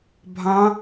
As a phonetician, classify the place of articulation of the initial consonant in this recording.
labial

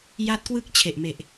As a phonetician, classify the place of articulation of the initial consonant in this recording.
palatal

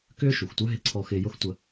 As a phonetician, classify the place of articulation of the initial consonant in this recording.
velar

